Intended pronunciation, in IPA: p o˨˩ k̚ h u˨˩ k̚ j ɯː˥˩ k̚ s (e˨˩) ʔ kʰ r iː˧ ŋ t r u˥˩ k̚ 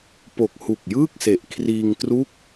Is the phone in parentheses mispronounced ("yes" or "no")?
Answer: no